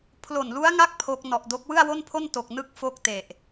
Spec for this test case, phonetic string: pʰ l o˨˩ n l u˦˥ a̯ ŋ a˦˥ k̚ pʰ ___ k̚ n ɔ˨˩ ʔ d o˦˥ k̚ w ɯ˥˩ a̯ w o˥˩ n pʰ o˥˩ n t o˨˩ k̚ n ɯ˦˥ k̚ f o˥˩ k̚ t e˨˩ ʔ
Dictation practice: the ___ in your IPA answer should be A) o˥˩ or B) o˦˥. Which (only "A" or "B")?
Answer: B